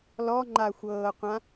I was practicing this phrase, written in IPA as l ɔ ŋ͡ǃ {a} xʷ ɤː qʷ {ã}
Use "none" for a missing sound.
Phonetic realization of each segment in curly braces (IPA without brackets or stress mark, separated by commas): a, ã